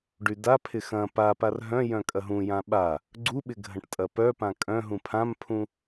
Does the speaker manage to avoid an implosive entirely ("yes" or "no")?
no